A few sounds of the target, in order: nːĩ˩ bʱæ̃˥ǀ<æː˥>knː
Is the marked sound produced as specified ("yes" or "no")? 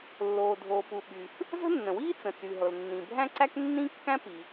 no